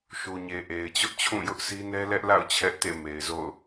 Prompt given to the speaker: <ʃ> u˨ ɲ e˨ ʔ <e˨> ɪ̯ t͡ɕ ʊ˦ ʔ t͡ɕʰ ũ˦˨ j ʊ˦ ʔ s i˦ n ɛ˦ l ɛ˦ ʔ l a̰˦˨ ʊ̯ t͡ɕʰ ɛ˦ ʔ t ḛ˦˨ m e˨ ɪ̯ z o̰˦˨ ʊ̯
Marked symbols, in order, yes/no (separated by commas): yes, yes